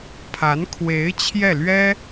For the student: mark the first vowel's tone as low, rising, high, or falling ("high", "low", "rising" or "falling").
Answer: rising